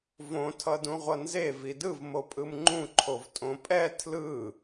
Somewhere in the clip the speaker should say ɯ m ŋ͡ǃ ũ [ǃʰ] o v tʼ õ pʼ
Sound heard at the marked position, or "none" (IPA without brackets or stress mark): ǃʰ